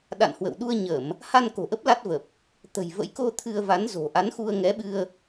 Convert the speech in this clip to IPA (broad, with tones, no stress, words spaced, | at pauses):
ɗa̰˧˨nhwə̰˧˨w ɗu˧ə̯ɲə˧˩˨m | ha˧n ko̤˨˩ʔə˦˥p̚ la˦˥t̚və˨˩p̚ | t̪ə̤˨˩jvə̰˧˥j ko˧ t̪ʰɨ˧ə̯va˨˦nzo̤˨˩ ʔa˨˦nxu˧ə̯ŋɛ˨˦ɓɨ˧ə̯